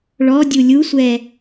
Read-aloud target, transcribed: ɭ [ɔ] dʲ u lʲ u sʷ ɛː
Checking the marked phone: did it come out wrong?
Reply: no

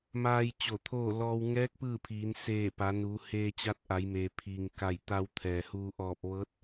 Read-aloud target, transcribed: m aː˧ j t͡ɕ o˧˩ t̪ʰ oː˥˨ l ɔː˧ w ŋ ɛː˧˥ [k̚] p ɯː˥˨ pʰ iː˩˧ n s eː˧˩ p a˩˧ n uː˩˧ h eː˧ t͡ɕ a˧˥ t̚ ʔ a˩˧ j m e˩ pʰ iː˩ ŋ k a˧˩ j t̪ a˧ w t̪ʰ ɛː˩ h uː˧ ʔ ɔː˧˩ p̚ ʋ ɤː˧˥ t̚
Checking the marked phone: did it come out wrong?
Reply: no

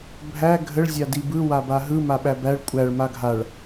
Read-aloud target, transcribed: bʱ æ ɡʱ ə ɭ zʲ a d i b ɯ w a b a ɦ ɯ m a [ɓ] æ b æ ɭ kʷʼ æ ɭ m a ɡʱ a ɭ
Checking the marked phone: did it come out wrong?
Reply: no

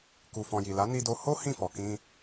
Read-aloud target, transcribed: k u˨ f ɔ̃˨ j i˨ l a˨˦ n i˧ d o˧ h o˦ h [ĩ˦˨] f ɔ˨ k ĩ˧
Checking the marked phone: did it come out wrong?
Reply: no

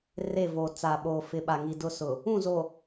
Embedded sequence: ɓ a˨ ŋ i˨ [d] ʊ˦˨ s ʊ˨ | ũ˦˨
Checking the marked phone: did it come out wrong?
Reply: no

